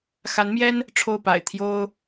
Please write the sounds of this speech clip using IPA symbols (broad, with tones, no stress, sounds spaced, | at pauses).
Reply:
x a˧˥ n m j ɛ˥ n | ʈ͡ʂʰ o˥˩ ʊ̯ p a̰˨˩ ɪ̯ t̪ʰ j o˥ ʊ̯